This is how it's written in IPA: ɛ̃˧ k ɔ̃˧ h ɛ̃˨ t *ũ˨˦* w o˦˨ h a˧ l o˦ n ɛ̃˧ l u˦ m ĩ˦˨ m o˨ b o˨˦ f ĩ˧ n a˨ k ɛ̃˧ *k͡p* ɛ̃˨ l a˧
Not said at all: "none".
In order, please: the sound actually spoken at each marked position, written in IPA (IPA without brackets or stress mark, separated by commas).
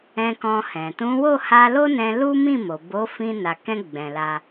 ũ˨˦, ɡ͡b